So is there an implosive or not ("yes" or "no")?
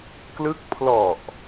no